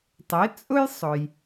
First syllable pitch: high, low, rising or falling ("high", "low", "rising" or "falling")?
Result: rising